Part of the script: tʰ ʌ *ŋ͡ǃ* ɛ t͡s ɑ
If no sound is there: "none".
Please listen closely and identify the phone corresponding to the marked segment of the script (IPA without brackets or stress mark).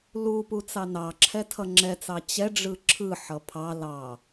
ŋ͡ǁ